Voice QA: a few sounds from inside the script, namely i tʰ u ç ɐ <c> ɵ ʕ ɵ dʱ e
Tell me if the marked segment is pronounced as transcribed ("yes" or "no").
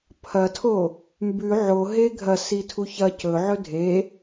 yes